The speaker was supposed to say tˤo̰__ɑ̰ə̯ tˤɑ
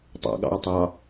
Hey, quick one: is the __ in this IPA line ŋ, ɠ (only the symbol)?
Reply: ɠ